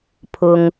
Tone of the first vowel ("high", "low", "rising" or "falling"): low